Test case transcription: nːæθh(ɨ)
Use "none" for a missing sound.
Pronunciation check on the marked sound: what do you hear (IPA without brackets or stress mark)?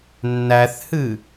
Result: ɨ